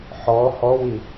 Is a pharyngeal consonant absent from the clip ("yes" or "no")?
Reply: no